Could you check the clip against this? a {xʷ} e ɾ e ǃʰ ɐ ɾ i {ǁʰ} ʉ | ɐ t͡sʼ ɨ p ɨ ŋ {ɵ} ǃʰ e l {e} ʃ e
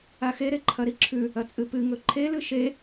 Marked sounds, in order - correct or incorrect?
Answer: incorrect, correct, correct, incorrect

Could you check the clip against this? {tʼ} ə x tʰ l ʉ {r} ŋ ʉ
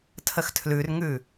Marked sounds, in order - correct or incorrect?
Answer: incorrect, correct

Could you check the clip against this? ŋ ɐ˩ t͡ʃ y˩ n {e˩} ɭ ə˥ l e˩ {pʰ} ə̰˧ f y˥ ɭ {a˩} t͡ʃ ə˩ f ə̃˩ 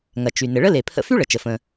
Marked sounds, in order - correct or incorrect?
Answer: incorrect, correct, incorrect

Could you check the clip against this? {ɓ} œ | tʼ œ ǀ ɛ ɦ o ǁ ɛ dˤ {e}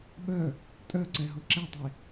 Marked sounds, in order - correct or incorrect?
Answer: correct, correct

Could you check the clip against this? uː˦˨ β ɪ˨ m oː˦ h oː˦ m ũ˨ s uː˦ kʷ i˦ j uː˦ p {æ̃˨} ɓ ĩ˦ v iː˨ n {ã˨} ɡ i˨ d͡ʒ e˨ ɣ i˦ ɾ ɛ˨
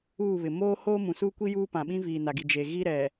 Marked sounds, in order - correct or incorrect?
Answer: incorrect, incorrect

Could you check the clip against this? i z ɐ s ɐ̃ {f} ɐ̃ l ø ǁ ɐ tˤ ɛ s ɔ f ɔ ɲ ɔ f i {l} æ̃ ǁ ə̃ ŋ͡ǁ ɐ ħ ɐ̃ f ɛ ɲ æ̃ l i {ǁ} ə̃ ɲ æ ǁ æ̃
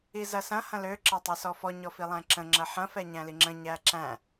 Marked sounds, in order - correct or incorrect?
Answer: incorrect, incorrect, incorrect

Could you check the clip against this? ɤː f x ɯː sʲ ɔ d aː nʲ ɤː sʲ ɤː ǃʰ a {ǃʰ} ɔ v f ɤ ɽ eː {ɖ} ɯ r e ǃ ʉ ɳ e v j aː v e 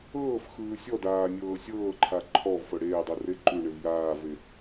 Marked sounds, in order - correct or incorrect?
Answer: correct, incorrect

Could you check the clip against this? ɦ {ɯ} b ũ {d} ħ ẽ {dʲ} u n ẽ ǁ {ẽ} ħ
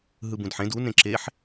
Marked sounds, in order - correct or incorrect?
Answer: correct, correct, incorrect, incorrect

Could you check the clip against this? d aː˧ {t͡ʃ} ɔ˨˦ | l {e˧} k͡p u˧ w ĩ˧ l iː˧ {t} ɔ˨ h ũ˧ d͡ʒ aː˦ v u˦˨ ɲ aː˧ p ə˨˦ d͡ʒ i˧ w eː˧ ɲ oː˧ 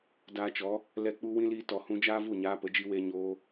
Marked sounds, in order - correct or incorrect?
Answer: correct, incorrect, correct

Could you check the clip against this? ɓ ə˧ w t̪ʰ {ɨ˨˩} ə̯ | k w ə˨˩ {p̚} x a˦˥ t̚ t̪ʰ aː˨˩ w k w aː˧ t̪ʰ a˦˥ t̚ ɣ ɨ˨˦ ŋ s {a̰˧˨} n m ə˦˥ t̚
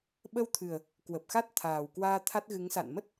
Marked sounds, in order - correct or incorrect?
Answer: correct, correct, correct

